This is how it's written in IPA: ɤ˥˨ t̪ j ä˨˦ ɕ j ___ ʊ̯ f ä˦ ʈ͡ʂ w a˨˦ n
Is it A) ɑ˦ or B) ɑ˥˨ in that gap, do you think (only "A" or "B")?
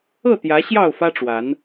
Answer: B